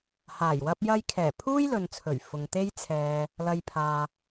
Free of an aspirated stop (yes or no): no